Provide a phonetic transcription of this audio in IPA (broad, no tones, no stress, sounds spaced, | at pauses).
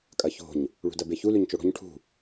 kʼ ɐ ç o̤ ɲ | ɭ ṳ d ɐ b e ç u l ʉ ɲ t͡ʃ o ɽ o̤ ɲ ʈʰ ṳ